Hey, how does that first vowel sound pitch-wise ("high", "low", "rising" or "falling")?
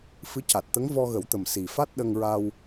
rising